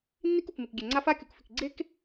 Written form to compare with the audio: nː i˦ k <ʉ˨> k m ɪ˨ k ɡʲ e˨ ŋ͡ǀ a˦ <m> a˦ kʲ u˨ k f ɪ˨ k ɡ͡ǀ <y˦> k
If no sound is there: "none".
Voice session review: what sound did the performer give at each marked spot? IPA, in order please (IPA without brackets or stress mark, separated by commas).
u˨, f, e˦